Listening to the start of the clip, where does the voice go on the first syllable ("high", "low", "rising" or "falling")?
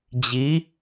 rising